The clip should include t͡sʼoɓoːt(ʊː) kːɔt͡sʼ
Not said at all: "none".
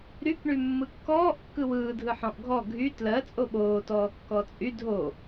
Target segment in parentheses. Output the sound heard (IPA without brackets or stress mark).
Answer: ɔː